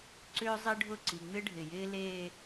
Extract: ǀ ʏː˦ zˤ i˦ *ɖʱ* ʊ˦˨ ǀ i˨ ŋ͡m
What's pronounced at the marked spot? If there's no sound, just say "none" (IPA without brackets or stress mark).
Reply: ɖʱ